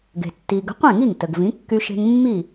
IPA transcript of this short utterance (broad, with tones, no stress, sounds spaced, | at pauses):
ɡ e̤˩ tː i˩ ɡ ə̤˩˥ qʷ ẽ˥˩ ŋ i˥˩ ŋ t ə˩ ɡ v ĩ˩˥ kː y˧ ʃ e̤˧ ŋ mː i˥˩